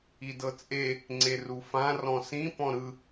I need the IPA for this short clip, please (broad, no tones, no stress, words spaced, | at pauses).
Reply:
idɤt͡sʼe | ŋ͡ǀerufã rɔ̃sĩ pɔ̃ɾɯ